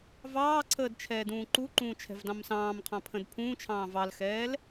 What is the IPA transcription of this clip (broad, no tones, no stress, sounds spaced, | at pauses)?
v ɑː ǀʰ əː d t͡ʃʰ ɛː d ũː ǃ u ǃ ũː t͡ʃʰ ɛ̤ v d ɑ̃ m s ɑ̃ː m qʰ ɑ̃ pʰ ə̃ d pʰ ũː t͡ʃʰ ɑ̃ː v ɑ l x ɛː l